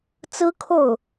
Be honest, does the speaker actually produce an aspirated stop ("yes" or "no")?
yes